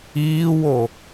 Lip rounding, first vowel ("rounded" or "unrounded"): unrounded